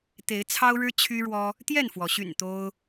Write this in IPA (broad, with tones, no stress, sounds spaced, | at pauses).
t̪ e˨˦ ɪ̯ t͡sʰ ɑ˦ ʊ̯ ɻ ɻ̩˦ t͡ɕʰ y˦ ɻ w ɔ˦ | t̪ j ɛ˥˨ n f w ɔ˩ ɕ y̰˨˩ n t̪ o˦ ʊ̯